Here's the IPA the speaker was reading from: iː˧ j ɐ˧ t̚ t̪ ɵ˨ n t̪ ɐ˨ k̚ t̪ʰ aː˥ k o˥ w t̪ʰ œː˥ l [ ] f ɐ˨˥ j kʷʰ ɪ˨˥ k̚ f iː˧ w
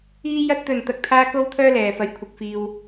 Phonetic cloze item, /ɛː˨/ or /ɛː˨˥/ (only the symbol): ɛː˨